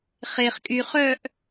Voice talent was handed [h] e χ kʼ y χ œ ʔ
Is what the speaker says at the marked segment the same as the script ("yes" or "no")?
no